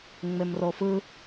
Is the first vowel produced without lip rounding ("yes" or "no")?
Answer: yes